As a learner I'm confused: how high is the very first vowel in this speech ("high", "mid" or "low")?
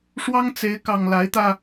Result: low